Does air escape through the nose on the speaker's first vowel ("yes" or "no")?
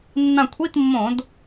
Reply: yes